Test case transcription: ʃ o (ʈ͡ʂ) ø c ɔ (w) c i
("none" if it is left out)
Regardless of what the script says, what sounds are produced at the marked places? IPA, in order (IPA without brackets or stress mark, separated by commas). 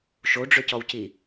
ɖ͡ʐ, w